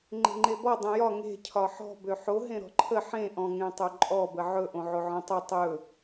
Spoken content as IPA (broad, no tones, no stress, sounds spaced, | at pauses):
ŋ͡ǃ e̤ ŋ͡ǃ e b ɔ dˤ ẽ j ɒ ŋ e̤ cʰ ɒ ħ ɔ̤ b ø ħ o ɦ ẽ ɾ ɔ̤ ǃʰ ə ħ ẽ ʔ ɔ̃ ŋ ẽ tˤ o ǃʼ ɔ b ə ʕ ɵ ʔ õ ʕ o ʕ ɔ̃ tˤ ɵ tˤ ɵ